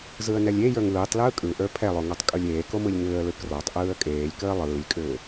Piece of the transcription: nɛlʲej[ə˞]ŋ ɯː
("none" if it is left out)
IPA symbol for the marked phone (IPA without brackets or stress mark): ə˞